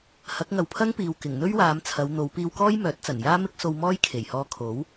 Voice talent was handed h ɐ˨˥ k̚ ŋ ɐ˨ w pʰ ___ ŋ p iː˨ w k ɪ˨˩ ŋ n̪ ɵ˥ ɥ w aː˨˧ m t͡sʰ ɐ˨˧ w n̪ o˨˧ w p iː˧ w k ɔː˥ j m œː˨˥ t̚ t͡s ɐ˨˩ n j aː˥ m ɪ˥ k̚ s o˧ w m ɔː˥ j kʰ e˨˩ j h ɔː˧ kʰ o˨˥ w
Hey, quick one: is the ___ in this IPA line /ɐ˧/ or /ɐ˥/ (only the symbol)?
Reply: ɐ˥